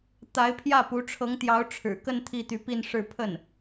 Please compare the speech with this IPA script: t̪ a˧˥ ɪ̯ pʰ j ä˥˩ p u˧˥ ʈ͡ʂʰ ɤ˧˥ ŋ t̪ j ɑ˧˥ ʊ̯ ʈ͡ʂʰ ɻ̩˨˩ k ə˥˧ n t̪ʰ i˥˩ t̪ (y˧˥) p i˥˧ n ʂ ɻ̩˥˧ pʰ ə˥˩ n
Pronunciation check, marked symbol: correct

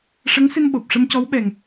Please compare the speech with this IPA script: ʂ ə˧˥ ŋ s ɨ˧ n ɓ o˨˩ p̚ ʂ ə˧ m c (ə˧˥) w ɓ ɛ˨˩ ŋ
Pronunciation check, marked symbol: incorrect: ɔ˧˥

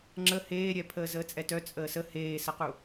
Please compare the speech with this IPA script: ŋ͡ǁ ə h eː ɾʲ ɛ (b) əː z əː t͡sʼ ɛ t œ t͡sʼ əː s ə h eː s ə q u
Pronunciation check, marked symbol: incorrect: pʰ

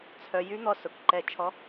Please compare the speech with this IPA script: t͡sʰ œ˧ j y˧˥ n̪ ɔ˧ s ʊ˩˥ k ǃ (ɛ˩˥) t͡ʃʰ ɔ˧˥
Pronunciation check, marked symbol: incorrect: ɛ˧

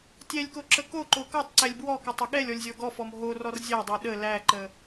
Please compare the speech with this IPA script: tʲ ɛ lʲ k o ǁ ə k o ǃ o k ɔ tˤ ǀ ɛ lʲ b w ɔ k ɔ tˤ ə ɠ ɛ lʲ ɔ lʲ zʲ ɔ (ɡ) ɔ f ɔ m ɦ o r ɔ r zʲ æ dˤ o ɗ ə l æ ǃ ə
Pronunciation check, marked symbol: correct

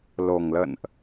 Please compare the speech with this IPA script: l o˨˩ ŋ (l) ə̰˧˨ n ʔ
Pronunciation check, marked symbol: correct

